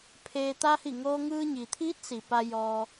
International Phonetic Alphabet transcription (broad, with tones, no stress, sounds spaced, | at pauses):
pʰ eː˧ t̪ a˧ h i˧˩ ŋ oː˧ ŋ ɯː˧ ɲ i˩ t̪ʰ iː˧˥ t̚ s i˩ p a˧ j ɔː˧